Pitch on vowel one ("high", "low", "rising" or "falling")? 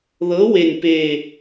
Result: rising